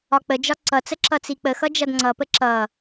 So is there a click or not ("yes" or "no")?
yes